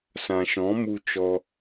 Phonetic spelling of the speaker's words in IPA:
s ã˨ ʃ ɔ̃˨˦ m u˧ t͡ʃ ɔ˧

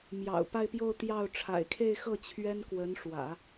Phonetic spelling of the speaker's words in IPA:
m j ɑ̰˨˩ ʊ̯ p a˥˧ ɪ̯ p j o˥˧ ʊ̯ t̪ j ɑ˥˩ ʊ̯ ʈ͡ʂʰ a̰˨˩ ɪ̯ kʰ e˥˧ ɪ̯ x ɤ˥˩ t͡ɕʰ ɥ ɛ˥ n k w ə˧˥ n ʂ w ä̰˨˩˦

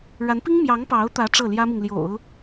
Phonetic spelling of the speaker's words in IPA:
ɻ a˧˥ n p i˥ ŋ m j ɑ˧˥ ŋ p ɑ˧˥ ʊ̯ t̪ ä˧˥ ʈ͡ʂ ɤ˥˩ l j ä˥ m i˨ ŋ l j o̰˨˩˦ ʊ̯

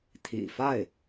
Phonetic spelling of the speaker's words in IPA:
t̪ʰ ḭ˨˩ f a˥˩ ɪ̯

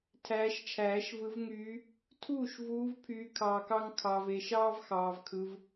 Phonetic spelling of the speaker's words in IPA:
tʰ æː˨˦ ʃ t͡ʃʰ æː˨˩˦ ʃ v ɯ˨˦ v ŋ yː˨˦ | tʰ uː˥˩ ʃ v uː˨˦ v pʰ yː˨˦ kʰ ɑː˨ k ɑ˦ ŋ kʰ ɑ˨ v e˨ ʃ ɑː˦ v x ɑː˨ v kʰ ɯ˨˦ v

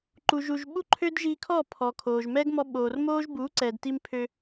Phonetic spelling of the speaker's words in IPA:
ǃ u˨ ʒ u˨ ʒ ɓ u˦ ǃʰ ø˦ d ʒ iː˧ kʰ ɔː˦˨ pʰ ɔ˨ kʰ oː˨ ʒ m ɛ˦ ɡ m ɔ˧ ɓ oː˨ r m oː˦ ʒ b uː˨˦ ǀ ɛ˨ d t i˧ m pʰ ø˧

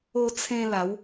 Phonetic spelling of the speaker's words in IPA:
o˧ t͡sʰ ẽ˧ l a˨˦ w

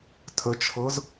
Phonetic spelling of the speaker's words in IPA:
tʰ ə t͡ʃʰ ɤ z

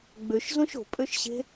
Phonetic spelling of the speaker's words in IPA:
ɡ͡b ø ʃ z õ ʃ o̤ pʼ ø ʃ ɕ e̤

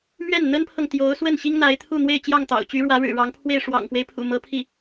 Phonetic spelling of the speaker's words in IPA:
m ɥ ɛ˥˩ n n̪ ə˥ n pʰ ɤ˨ ŋ t̪ j o˧˥ ʊ̯ s w ə˥˩ n ɕ i˥ ŋ n̪ a˧˥ ɪ̯ t̪ʰ u˥˧ n̪ w e˥˧ ɪ̯ t͡ɕ j ɑ˥˩ ŋ t̪ ɑ̰˨˩ ʊ̯ t͡ɕ y˧˥ ɻ w ä˧˥ ɻ ɻ̩˨˩ ɻ ɑ˧˥ ŋ pʰ w e˥˩ ɪ̯ ʂ w ɑ̰˨˩ ŋ f w e˦ ɪ̯ pʰ ṵ˨˩ m ɤ˧˥ pʰ i˥˩

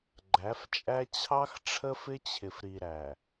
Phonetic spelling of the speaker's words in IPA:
ɡ͡ǃ æ˨˦ f t͡ʃʼ æ˦ t͡ɕʰ ɑ˦ x ʈ͡ʂʰ ə˦ f ɪ˦ t͡ɕʰ ɪ˨ f ɾ i˨ ɾ æ˨

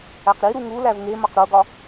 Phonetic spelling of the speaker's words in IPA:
æ q ɾ i ɾ u ŋ u l æ v ŋ e m ɒ q ɾ o ɡ ɒ

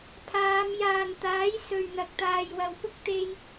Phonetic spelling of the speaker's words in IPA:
pʰ aː˨˧ m j aː˨ n t̪ aː˨˥ j s ɵ˨ ɥ n̪ ɐ˨ k̚ t̪ aː˨ j w ɐ˨ w p ʊ˥ k̚ t̪ e˧ j

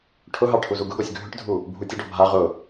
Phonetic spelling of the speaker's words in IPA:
ʈʰ ʊ ɦ ɑ ʈʰ u z u ɡ ʊ ɡ ɔ sʲ ɡʱ ʏ ʈ dʱ u | bʱ u tʲ ə ɖ ɔ bʱ a ʁ ʊ

